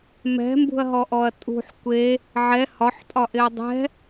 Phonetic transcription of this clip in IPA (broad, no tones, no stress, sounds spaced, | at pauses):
m ɛ̤ m b ṳ ɐ̯ ɦ ɔ ʔ ɔ ɐ̯ tʼ ṳ ħ kʷ e | ʕ ɛ h ɒ ħ tʼ ɒ ʔ ɪ ɐ̯ dˤ ɛ̤